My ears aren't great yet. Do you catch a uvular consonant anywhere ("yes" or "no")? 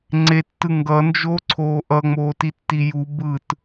no